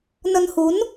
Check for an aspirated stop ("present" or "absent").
absent